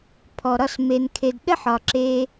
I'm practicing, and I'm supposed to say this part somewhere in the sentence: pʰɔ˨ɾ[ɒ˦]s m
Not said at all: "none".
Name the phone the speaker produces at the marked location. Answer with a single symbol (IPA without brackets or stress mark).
ɒ˦˨